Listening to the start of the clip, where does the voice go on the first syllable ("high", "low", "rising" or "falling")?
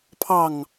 falling